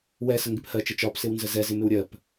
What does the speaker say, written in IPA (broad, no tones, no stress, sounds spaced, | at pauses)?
w ɛ s ə ŋ ɡ ɪ p h ɜ t͡ʃ ə t͡ʃ ɒ p s ɪ w n z ə z ɛ z ɪ m ɪ w ɾʲ ɜ p